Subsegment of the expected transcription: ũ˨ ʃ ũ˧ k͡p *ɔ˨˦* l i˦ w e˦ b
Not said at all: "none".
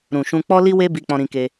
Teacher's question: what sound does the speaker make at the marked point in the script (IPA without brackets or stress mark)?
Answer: ɔ˦